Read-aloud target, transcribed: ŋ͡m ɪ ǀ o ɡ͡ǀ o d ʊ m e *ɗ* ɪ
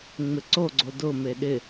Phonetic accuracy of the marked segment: correct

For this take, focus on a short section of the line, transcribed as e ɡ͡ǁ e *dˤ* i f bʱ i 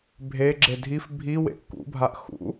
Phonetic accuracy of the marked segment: incorrect: dʱ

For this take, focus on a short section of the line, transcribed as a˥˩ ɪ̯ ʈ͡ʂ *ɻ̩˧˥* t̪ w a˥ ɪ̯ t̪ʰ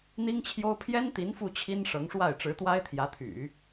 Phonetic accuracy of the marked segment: correct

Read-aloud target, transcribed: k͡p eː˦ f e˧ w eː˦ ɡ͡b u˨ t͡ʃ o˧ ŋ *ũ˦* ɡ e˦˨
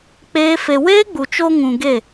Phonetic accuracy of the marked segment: incorrect: ũ˨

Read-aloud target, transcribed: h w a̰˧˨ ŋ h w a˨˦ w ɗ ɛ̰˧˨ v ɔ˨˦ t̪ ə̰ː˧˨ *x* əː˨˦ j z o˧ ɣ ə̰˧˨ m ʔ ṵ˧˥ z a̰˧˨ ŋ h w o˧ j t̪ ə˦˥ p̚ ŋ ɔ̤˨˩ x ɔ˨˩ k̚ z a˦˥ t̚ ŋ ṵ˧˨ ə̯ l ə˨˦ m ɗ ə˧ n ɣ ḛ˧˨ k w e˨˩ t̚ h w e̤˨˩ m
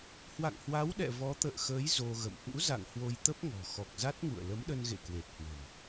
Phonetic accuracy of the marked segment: correct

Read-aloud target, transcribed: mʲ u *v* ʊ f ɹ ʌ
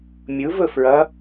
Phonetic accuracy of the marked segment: correct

